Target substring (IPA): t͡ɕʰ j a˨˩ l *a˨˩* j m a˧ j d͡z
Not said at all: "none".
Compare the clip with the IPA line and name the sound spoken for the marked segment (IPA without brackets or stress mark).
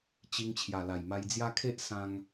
a˨˩